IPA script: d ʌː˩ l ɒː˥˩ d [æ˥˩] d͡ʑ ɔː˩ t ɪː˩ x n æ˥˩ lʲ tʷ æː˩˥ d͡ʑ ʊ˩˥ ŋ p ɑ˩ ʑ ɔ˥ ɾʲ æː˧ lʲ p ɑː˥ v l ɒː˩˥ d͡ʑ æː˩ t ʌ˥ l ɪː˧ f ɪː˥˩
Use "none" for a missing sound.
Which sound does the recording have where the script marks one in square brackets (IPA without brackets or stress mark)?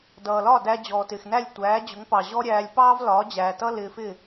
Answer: æ˧